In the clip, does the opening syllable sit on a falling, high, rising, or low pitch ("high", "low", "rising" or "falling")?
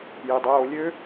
low